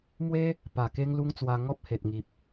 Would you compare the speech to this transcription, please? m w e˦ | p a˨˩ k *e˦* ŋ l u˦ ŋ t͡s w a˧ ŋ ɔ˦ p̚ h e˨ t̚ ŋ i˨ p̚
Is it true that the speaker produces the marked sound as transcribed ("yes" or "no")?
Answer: yes